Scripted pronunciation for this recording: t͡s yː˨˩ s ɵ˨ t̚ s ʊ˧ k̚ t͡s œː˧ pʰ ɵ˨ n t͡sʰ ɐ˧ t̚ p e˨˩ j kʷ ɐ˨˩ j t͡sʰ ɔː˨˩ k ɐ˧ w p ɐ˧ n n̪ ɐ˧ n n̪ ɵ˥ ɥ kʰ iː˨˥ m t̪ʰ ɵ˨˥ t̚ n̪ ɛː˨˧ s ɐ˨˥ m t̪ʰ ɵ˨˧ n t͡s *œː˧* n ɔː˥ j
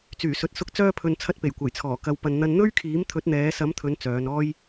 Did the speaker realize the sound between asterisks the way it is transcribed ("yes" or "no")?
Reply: no